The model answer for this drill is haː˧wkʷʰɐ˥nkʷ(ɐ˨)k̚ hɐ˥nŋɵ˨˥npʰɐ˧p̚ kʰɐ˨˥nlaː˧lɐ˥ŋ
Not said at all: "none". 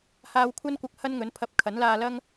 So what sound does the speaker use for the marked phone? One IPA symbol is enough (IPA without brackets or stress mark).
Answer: ɐ˧